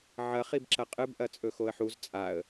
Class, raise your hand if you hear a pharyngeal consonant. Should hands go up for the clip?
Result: yes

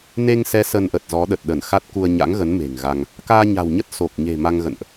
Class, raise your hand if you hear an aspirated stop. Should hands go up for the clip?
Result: no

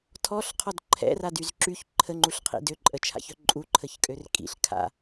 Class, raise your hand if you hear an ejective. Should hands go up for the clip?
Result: yes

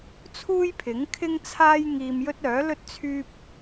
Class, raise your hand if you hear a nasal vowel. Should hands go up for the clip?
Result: no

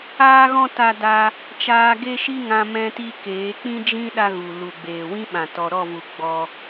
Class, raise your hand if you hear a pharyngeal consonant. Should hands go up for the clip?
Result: no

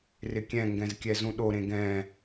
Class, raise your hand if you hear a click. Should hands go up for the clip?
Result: no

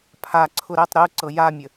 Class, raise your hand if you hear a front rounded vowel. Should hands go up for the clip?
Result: no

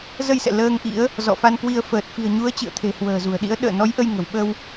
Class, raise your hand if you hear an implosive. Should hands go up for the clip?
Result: yes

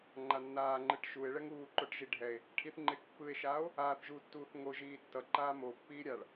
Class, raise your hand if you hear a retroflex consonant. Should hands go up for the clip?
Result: yes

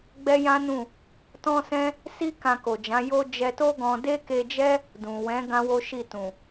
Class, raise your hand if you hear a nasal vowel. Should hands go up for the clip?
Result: yes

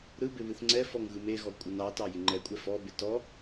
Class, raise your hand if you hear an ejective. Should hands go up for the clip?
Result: yes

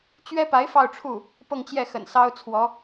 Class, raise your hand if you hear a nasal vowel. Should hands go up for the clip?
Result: no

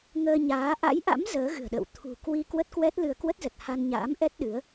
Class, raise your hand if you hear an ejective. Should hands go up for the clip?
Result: no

